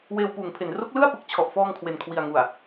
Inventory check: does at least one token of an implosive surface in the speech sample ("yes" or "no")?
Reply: no